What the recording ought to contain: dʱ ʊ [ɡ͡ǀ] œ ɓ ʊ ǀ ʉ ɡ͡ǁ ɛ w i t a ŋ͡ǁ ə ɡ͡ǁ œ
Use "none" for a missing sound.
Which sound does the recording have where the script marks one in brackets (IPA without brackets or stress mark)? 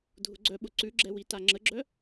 ɡ͡ǀ